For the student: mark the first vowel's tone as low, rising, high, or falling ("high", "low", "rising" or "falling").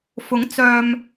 rising